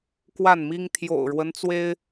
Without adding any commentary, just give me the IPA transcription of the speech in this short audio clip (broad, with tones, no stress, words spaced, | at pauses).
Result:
kwa˥˨nmi˦ŋ t̪ʰjo̰˨˩ʊ̯ɻwə˦nt͡swe˦ɪ̯